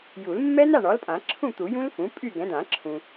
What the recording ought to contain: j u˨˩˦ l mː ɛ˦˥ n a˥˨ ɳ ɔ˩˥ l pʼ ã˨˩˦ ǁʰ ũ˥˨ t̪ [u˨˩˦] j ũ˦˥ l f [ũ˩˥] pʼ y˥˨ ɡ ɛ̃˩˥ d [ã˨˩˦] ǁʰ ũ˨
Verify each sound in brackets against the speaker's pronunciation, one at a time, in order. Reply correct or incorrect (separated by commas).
correct, correct, correct